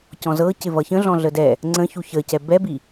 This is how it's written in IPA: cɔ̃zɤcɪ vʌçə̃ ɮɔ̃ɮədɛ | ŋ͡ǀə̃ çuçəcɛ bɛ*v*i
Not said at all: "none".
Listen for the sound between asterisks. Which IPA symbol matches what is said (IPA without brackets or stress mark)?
b